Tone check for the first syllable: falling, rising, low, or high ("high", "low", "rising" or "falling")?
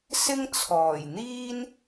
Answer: high